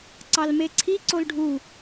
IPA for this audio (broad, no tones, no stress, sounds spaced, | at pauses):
ǀ ɑ l m e ǀʰ i ǀ o l ɖʱ u